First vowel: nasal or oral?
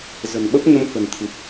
oral